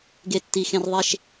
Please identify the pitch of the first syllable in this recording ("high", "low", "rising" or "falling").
high